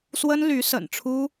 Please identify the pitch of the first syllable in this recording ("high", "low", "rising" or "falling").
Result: high